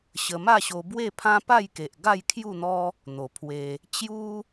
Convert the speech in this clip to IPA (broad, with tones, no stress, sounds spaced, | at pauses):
ɕ ə˧ m a˥˧ ɕ o˧ b w e˥˧ pʰ ã˦ p a˥˧ j k e˨ ʔ ɡ a˥˧ j kʰ j u˥˧ n̪ ɔ˦ | n̪ o˨˩ pʰ w e˧ | t͡ɕ j u˦